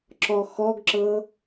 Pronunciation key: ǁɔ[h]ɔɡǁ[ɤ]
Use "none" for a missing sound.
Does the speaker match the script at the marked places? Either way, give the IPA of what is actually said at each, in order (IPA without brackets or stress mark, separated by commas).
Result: x, ɤ